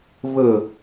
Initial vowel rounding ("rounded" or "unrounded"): unrounded